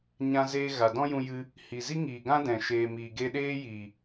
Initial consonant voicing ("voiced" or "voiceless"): voiced